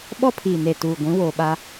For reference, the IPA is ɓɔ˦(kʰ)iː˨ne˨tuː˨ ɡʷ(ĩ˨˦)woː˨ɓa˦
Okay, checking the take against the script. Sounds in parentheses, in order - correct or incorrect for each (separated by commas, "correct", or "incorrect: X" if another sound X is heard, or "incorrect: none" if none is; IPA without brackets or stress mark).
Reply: incorrect: pʰ, correct